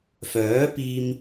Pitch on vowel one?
rising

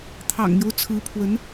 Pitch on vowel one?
low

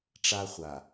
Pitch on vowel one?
high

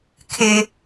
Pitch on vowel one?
high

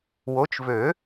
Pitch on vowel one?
rising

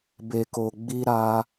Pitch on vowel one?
low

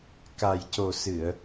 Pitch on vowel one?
low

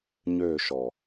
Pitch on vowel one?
falling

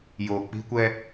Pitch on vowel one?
low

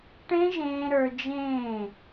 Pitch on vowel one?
high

